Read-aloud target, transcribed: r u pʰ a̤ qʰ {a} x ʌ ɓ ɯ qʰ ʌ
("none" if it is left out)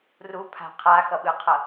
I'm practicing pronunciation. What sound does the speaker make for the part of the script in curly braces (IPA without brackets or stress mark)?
a